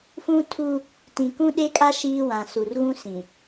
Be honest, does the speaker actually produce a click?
no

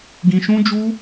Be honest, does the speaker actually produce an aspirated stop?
no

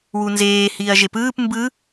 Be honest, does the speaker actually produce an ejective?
no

